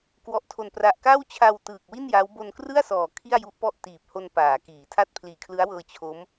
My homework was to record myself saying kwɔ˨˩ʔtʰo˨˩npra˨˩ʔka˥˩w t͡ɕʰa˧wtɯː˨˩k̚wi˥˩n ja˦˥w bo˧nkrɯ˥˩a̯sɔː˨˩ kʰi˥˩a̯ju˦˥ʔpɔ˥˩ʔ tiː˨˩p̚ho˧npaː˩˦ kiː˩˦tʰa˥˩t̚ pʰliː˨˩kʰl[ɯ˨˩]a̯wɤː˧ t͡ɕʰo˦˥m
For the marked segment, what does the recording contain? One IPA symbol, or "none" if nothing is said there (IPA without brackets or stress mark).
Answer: ɯ˦˥